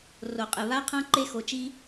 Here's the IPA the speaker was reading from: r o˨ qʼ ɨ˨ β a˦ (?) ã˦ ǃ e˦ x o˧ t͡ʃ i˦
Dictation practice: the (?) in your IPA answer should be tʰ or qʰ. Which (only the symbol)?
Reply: qʰ